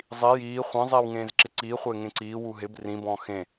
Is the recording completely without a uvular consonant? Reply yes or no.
no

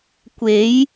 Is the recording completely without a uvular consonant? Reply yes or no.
yes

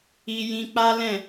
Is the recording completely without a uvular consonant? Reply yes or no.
yes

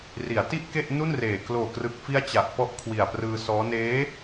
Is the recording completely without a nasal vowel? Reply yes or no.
yes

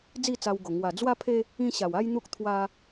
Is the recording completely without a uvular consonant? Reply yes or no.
yes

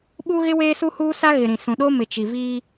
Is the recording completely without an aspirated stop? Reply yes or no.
yes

